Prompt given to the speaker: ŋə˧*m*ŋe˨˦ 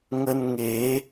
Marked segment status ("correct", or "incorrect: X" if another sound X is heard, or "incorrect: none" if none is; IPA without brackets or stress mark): incorrect: n